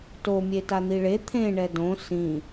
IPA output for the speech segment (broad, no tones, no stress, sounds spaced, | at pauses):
t o mʲ e t a n̪ i ɭ e t̪ʰ ẽ ɳ ɛ d õ s ĩ